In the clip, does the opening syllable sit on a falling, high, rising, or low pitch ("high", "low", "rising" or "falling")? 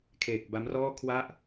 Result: low